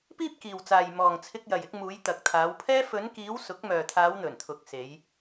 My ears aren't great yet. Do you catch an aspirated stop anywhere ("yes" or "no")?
yes